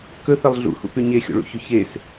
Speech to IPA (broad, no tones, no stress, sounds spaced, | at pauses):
k ɵ θ ɐ lˠ ɮ ṵ h ṵ p ʉ ɲ e xʲ o̰ ɭ ṵ ç ɵ ç e s